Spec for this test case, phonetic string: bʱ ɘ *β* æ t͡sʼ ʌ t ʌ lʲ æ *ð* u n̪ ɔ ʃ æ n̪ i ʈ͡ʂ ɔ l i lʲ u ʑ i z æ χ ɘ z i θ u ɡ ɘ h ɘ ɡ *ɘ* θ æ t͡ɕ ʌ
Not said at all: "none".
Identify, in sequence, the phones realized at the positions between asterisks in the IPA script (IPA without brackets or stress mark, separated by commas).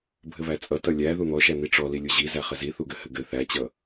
β, ð, ɘ